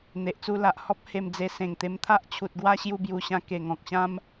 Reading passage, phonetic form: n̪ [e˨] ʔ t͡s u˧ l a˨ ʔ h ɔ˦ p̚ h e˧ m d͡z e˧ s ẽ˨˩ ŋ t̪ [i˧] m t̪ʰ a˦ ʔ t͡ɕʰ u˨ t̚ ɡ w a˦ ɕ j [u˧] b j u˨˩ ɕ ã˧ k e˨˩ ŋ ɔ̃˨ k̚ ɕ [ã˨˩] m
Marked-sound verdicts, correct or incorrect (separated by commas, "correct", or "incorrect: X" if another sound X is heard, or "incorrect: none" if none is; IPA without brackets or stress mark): correct, incorrect: e˧, correct, incorrect: ã˦